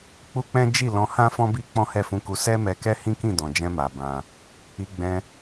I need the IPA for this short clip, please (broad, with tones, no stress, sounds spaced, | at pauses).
k͡p u˦ k͡p ɛ̃˦ d͡ʒ i˦˨ l ɔ̃˧ h ã˦ f ɔ̃˦ b i˦ k͡p ɔ̃˦ h ɛ˦˨ f ũ˧ k u˧ s ɛ˦ m ɛ˧ k ɛ˦ h ĩ˦ k ĩ˦˨ d ɔ̃˨ d͡ʒ ɛ̃˧ m a˨ b ã˧ | i˧ ɡ͡b ɛ̃˧